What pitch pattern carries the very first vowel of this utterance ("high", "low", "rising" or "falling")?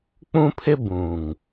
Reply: high